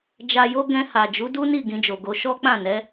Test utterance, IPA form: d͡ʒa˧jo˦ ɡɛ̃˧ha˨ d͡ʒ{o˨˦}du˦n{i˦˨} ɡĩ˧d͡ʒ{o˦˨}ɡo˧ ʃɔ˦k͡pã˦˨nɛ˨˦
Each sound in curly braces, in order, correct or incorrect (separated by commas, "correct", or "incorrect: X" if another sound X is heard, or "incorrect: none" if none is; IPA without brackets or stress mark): incorrect: u˨˦, correct, incorrect: o˨